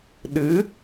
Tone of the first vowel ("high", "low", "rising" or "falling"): rising